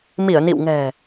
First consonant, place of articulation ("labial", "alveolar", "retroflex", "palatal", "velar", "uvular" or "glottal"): labial